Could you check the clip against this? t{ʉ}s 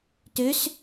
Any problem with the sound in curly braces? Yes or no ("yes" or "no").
yes